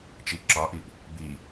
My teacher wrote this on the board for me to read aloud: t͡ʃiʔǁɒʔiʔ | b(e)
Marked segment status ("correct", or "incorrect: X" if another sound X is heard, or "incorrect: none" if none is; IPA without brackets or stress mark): incorrect: i